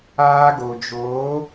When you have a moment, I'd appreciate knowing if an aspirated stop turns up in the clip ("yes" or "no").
no